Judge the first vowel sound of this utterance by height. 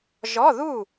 mid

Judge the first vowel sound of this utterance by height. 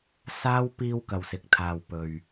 low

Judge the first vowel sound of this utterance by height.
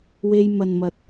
mid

